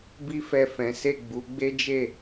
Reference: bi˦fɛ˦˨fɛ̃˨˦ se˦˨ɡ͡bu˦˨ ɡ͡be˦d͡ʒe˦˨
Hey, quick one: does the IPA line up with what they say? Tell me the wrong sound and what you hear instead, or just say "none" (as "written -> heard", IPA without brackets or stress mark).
u˦˨ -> u˨˦